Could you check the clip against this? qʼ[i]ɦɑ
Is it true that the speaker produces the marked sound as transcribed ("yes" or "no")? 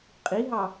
yes